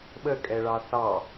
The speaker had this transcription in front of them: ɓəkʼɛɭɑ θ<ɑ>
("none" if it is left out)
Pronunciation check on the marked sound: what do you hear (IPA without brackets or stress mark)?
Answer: ɑ